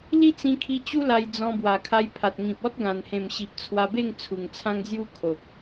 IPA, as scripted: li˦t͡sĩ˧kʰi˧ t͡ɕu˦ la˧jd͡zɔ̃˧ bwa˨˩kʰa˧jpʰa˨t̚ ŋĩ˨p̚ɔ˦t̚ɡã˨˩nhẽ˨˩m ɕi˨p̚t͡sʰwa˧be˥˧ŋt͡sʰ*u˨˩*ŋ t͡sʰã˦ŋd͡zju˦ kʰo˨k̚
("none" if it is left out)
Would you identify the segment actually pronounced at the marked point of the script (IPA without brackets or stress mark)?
u˨˩